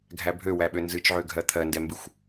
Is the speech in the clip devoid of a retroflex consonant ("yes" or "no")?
yes